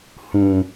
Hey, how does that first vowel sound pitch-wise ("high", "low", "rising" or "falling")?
low